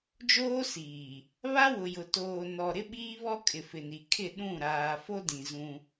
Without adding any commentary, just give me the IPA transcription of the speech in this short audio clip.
d͡ʒoː˦siː˨ | βa˦wʊ˨jʊ˨ toː˨nɔ˨ ɾɪ˦ɓiː˦βɔ˦ kʼɪ˨fɪ˨ni˨ kʰɪ˦˨ɗũ˦˨ ɾaː˨fo˦dĩ˨ zũ˦

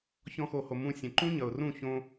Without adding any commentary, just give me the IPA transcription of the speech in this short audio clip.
çɔ̃˧xo˨ho˨ mũ˧ sʲə̃˨ǃũ˦ɲʌ˨ʊ̯rũ˦˨ çõ˧

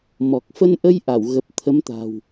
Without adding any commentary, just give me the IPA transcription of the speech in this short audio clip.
mɔ˨˩k̚fə˧nʔə˧j ʔa˧˩wɣə˨˩p̚ t̪ʰə˨˦mt̪a̤˨˩w

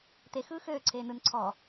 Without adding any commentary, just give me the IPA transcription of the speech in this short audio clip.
t̪exɯː xøːǀʰeː nɯn ǀʰɔ

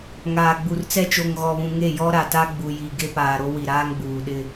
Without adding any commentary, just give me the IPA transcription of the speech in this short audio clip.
ŋaː˨ɡ͡bu˨rt͡sɛ˦ t͡ʃo˨ŋɣɔ˨βũ˨ ŋe˦˨jɔ˦ ɾa˨ta˦ ɡ͡bu˨ji˨ ɡe˦paː˨ɾo˦ wi˨ɾaː˦ŋɡ͡buː˨ɗɪ˦

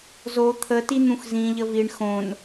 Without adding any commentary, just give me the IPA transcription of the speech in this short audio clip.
zo t̪ʰəti n̪ũxzĩʎə viɳ xõn

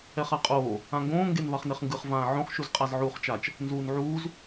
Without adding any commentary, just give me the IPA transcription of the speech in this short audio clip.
ɛχaqʼoː | ãŋɡõː ŋɡenvaχneχŋɡɯχ vãːʕõχ ʃuzqʼazʕuːχt͡ʃat͡ʃ | nzuːnʕuːz

